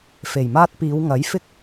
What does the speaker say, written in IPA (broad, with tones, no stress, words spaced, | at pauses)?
fe˨˩jmaː˧t̚piː˨˧w ŋɐ˨˥jfɪ˥k̚